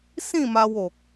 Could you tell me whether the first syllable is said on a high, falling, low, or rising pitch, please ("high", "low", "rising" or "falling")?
falling